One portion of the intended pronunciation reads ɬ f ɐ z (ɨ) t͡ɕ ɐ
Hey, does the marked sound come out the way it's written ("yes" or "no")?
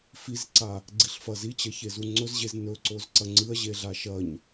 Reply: no